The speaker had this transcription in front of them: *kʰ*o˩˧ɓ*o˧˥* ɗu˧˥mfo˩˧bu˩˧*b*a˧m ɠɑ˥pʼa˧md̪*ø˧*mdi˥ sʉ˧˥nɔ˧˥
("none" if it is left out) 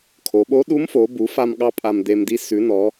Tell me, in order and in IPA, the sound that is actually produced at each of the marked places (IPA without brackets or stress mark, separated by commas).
kʰ, o˧˥, f, e˧